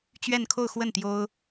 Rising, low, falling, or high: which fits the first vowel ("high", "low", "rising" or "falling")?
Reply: falling